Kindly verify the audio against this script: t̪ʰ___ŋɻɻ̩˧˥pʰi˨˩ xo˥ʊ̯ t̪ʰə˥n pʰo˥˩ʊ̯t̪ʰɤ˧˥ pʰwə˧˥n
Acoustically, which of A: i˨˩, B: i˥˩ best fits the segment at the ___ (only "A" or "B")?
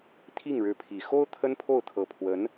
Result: B